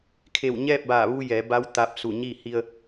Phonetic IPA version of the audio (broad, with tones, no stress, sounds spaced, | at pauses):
kʰ e˧˩ w ɲ ɛː˥˨ p̚ b aː˧˩ ʋ u˧ j ɛː˩˧ b a˧˥ w t̪ aː˧ p̚ s u˧˩ ɲ i˥˨ h i˧ ə̯